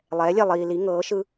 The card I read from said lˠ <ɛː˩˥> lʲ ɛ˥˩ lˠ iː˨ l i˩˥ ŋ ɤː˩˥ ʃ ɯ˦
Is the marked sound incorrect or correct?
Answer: correct